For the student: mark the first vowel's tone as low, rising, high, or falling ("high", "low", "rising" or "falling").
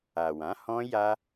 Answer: low